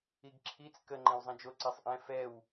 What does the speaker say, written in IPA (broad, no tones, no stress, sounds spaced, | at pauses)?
i ɡ ǁʰ i t͡s k ə ŋ͡ǃ ẽ w zˤ ẽ d͡ʒ o ǀ e sˤ ʔ ɛ̃ f ɛ w